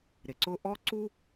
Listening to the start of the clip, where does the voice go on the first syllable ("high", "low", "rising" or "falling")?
low